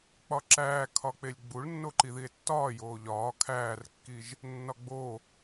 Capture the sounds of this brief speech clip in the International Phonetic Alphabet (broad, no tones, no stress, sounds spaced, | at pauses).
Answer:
k͡p ɒ ǁ æː kʰ ɒ k͡p e lʲ ɡ͡b u ɭ nː o ǃ i ð i e̯ tː ɒː j oː ʎ ɒː kʰ æː r kː i ʒ | nː ɒ ɡ͡b o